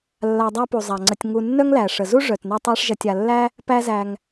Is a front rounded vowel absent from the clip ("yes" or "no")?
no